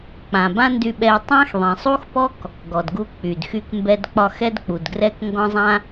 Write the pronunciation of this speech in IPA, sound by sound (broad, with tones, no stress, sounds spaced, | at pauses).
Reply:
k͡p ã˨ b ã˦ n d y˧ ɓ ɛ˧ tˤ ã˦ x ðˤ ẽ˨ sˤ u˦ x p ɔ˦ k | ɡ ɔ˨ d ɡ u˧ k͡p y˨ d x y˧ k m b ɛ˧ d k͡p ɒ˧ x ɛ˦ d k͡p u˨ d ɡ r ɛ˦ k ŋ ɡ ɔ̃˦ zˤ ã˦